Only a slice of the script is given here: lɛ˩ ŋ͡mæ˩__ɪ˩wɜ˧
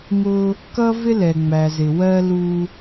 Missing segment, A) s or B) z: B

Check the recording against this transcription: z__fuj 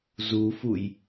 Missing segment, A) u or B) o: A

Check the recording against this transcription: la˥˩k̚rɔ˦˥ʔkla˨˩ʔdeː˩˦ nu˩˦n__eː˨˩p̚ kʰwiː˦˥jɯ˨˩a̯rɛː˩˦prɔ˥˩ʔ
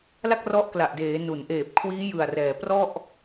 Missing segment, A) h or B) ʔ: B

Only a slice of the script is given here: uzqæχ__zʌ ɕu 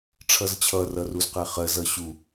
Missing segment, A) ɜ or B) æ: A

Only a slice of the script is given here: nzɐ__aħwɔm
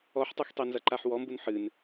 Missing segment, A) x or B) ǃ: B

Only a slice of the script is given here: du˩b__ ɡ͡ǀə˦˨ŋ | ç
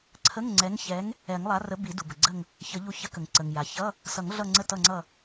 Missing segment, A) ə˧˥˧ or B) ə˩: B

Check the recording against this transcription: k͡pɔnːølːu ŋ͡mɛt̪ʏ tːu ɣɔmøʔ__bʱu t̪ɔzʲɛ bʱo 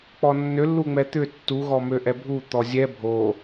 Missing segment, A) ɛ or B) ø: A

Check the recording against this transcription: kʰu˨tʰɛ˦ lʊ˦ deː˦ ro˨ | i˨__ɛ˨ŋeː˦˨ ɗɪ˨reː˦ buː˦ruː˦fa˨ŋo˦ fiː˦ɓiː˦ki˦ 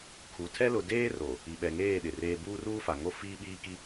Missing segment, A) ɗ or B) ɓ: B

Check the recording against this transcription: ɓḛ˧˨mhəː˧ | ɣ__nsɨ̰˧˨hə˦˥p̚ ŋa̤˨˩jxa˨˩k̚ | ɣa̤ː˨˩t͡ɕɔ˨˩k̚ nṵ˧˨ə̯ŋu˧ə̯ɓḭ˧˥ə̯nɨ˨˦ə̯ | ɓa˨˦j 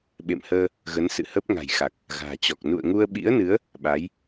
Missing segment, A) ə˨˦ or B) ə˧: A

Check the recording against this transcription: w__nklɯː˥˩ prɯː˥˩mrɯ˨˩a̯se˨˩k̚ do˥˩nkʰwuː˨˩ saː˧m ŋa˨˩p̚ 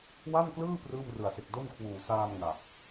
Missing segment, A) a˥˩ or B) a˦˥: A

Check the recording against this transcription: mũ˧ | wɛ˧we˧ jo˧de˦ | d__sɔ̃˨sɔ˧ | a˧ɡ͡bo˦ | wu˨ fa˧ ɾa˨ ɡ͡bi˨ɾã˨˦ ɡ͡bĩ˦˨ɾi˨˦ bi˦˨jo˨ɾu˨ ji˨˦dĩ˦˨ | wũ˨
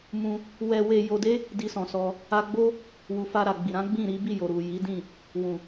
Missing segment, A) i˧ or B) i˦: A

